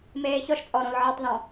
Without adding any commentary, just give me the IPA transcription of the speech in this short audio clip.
m eː ç ɔ ʃ t͡sʼ ɔ ɾ õ l ʕ ɤ tˤ ð ɔ̃

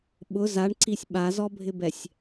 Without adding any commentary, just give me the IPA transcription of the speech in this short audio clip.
ɓ ʊ z a ɳ ǀ i sʲ ɓ a z ɔ bʱ ɪ b ɛ sʲ

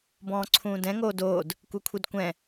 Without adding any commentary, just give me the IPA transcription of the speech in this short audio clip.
b ɔ̃ː ǀʰ ũː d ɛ̃ ŋ oː d oː d | kʷ e kʷʰ i d kʷ ɛ̃

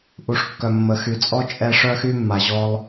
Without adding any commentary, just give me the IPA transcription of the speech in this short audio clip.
ʔ u˨ ʂ kː œ˨ mː ə˨ x y˨ t͡sʼ ɔ˧ t͡ʃʼ ɛ˧ ʂ œ˧ x y˧ mː a˨ ʑ ɔ˧ lˠ

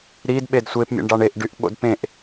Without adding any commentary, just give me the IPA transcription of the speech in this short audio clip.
ɾ i d ɓ e d sʷ e p mʲ ḛ ɳ ɖ ɑ ɳ e ʔ ɖ y ʔ ɓ o̰ d p ẽ ʔ

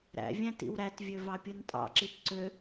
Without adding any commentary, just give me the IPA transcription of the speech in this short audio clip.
ɾ æ̰ vʲ æ̃ t ḭ w ɾ æ t vʲ ø v ɑ pʲ ɯ n tʼ ɑ̰ ǁ i t ǀ ø

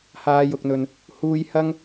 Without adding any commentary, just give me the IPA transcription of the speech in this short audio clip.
h aː˨˧ j ʊ˨ k̚ n̪ ɵ˨ n | h uː˧ j h ɐ˥ ŋ

